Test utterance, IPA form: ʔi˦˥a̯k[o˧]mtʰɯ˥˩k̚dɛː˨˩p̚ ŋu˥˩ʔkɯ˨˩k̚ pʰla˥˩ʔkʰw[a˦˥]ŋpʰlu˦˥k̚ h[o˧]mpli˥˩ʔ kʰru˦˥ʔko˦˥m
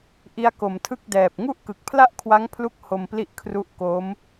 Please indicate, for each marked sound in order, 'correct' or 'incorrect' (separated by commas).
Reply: incorrect, correct, correct